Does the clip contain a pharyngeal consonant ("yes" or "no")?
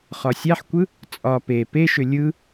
yes